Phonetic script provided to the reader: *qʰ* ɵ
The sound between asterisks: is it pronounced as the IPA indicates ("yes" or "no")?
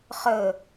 no